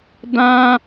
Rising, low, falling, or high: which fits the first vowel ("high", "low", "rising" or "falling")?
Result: high